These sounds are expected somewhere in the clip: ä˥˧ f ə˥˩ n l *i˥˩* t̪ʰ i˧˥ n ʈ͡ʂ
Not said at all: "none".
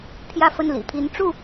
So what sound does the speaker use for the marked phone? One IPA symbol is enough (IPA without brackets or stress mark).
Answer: ḭ˨˩